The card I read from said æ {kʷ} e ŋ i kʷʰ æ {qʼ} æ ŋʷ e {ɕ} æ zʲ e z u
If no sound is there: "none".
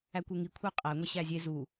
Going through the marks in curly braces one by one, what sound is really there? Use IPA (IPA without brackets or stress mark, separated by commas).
kʷ, qʼ, ɕ